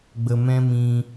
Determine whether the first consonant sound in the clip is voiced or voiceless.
voiced